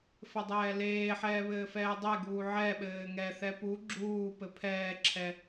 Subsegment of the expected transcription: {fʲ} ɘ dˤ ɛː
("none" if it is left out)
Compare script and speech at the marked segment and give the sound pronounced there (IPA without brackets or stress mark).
f